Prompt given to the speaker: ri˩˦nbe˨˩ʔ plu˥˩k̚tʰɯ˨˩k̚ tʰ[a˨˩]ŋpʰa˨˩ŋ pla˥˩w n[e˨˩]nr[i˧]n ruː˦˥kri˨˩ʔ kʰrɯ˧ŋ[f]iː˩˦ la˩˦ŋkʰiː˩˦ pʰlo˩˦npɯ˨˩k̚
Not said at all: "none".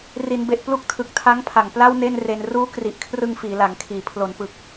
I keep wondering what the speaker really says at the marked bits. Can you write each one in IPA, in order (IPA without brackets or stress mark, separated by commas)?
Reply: a˦˥, e˥˩, e˧, f